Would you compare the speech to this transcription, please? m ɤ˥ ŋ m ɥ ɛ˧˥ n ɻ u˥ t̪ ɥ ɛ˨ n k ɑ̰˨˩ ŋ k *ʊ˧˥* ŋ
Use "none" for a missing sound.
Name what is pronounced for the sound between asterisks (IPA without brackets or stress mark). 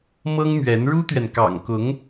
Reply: ʊ˧˥